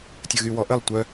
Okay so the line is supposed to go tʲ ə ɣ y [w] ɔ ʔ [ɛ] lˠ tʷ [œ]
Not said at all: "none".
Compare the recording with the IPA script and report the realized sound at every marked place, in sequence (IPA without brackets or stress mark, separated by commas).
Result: w, ə, œ